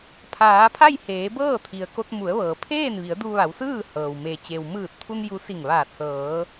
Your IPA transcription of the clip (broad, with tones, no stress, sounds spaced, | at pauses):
pʰ aː˩˧ pʰ a˥˨ j h eː˩˧ b ɤː˥˨ t̪ʰ i˩ ə̯ k o˧ t̚ m u˩˧ ə̯ ʋ ɤː˩ pʰ eː˥˨ n ʋ i˩˧ ə̯ d u˧ ʋ a˩˧ w s ɯː˥˨ h ɤː˩ w m e˩ t͡ɕ e˩ w m ɯː˧˩ t̚ t̪ʰ u˧ n j u˧˥ s i˧˩ ŋ ʋ aː˧˩ t̚ s ɤː˩˧